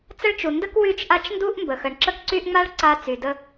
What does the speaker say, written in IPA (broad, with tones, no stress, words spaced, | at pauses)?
t͡sə˦ɭt͡ʃu˩ndə˥k wy˦t͡ʃʔa˦t͡ʃndu˥ʔ mbə˩xə˩ɳ ǁə˦kǀy˦ʔŋ͡ma˥ɭ ǀa˦t͡sy˩də˦